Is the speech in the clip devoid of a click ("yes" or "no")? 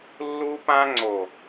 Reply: no